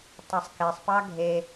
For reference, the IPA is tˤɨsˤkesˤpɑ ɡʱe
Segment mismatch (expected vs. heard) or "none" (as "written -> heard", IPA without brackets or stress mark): ɨ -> e